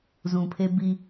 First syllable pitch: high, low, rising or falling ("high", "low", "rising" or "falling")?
low